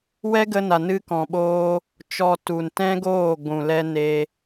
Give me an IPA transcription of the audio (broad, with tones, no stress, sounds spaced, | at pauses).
w ɛ˦ ɡ ə˧ n a˨ n ɨ˧ k ɔ̃˨ ɓ oː˧ | t͡ʃ ɔ˧ t u˨ n t ɛ̃˦ ɡ oː˦˨ ɡʷ ũ˨ l ɛ˧ n e˧